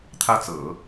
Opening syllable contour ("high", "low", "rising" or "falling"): falling